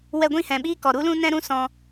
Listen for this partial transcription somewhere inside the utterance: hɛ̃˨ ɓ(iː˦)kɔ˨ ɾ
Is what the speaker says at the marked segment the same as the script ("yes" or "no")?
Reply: yes